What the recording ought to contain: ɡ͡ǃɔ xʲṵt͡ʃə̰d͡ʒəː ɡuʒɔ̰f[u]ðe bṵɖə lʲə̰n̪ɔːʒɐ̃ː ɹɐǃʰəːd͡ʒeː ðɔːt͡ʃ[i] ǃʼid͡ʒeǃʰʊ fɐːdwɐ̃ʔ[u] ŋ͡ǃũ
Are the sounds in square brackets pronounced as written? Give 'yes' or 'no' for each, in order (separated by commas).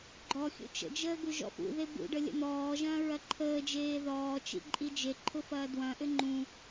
no, no, no